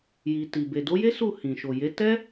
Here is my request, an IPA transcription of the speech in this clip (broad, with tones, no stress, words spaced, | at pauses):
ji˨ti˨ be˨do˨˦je˦su˦˨ hĩ˨ʃo˨je˨˦ tɛ˦